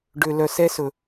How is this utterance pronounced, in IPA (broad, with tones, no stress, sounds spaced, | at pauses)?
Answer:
ɖ ø˨ l œ˨ s ɛ˦ s ɵ˨